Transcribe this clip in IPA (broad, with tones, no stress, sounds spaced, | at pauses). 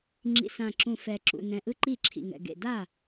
ŋ͡ǁ ḭ˨˩ s ã˨˩ ǁ ũ˨˩ f ɛ˨˩ ǁ ṵ˨˩ n ɛ̃˨˩ ʔ ɯ˥˩ ǃ i˥˩ ǁʰ ḭ˨˩ ŋ ɛ̰˨˩ ɡ ḛ˨˩ d a˥˩